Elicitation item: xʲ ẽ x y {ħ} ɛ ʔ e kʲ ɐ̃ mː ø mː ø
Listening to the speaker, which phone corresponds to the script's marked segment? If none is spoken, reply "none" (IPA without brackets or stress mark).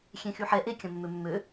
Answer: ħ